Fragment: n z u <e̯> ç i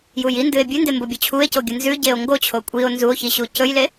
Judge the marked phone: incorrect: o̯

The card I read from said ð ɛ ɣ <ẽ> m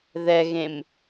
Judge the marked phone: correct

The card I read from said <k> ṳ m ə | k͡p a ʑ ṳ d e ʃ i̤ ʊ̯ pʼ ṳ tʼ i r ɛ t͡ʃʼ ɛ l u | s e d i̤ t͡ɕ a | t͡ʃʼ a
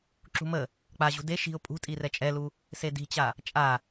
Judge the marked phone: incorrect: ǁ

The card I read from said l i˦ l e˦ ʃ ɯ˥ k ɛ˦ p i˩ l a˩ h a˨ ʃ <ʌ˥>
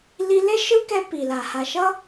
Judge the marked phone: correct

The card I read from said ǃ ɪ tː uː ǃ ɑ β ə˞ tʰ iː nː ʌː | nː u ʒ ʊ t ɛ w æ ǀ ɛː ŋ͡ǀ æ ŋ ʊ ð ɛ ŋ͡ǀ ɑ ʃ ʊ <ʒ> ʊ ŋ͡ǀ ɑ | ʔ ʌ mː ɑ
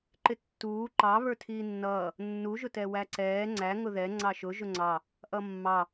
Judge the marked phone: correct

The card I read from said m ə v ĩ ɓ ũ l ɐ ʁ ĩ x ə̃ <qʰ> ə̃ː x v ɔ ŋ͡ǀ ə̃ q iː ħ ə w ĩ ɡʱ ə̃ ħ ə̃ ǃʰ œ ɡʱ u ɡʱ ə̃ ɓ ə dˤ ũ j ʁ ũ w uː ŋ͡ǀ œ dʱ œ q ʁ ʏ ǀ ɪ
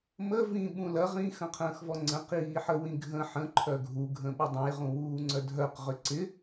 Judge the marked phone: correct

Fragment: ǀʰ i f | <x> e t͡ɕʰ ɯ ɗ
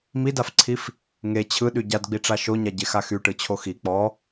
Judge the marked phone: incorrect: ŋ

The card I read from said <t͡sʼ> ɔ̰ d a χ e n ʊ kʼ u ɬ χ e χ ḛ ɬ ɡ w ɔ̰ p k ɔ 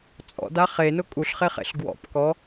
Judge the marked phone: correct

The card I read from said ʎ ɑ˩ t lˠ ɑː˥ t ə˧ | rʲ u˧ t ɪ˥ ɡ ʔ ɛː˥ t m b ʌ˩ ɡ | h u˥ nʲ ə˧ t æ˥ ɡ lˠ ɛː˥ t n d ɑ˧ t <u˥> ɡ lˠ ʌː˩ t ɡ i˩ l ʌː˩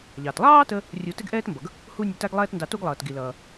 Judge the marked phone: correct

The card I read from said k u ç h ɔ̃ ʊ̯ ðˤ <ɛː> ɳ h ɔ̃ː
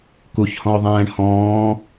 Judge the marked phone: incorrect: ɛ̃ː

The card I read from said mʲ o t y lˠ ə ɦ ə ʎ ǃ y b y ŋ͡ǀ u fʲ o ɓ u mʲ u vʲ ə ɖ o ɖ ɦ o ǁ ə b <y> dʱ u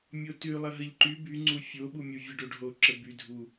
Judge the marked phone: correct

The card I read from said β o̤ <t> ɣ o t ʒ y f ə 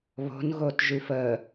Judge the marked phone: incorrect: n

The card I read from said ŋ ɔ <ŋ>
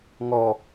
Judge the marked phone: incorrect: none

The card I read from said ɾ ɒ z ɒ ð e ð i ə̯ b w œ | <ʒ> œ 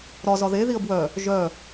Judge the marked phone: correct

